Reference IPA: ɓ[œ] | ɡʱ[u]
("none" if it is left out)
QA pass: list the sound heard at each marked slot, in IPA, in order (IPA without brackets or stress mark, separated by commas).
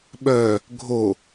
œ, o